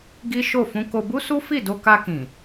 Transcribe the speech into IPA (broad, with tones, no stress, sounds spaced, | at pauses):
ɡ i˦ ʃ o˦˨ f ũ˧ k o˧ b u˦ s u˦ f i˦˨ d o˧ k a˧ k ĩ˨